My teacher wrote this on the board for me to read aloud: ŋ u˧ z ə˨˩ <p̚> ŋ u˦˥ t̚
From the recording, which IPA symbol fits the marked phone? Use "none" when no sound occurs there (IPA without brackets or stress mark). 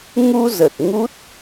t̚